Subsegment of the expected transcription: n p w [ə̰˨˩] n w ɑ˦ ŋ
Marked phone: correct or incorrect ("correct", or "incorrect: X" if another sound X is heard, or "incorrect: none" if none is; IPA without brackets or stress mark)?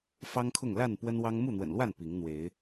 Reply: incorrect: ə˦